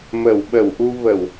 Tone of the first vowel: low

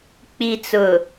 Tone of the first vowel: low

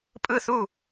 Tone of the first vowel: falling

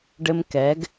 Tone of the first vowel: high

